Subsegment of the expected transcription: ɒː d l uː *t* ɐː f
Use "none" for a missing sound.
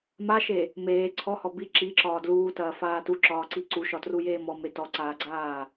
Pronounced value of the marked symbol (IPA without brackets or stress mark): t